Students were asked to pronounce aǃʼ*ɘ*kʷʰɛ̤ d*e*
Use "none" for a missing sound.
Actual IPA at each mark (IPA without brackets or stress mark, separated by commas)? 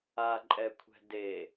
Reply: ɛ, e